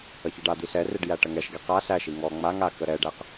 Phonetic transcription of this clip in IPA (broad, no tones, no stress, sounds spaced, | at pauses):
ə ç e ɖ a d̪ i ɬ ɛ r e ɖ j æ ʈ ə ŋ ɛ ʃ ɡ e q a ɬ æ ʃ i ŋ ɔ ŋ͡m a ŋ a k ə ɾ ɛ ɖ æ q